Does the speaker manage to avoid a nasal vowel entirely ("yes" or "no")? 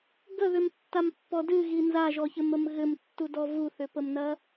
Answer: yes